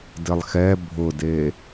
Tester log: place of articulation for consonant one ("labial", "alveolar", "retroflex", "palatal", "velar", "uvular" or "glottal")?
alveolar